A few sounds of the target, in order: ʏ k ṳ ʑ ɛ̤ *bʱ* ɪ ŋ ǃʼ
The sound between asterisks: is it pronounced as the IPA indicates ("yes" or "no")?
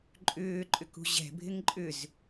yes